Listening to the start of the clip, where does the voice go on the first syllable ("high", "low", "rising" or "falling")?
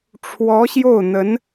rising